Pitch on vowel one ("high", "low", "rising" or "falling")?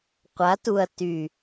rising